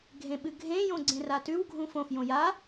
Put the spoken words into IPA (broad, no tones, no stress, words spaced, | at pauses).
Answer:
ɡʱẽɓɨɡʱẽ jõɡ͡ǀẽratʉw ɡʱũfõf jõja